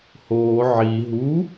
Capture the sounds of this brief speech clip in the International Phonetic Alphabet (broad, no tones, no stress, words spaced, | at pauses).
hoː ʕi ɦu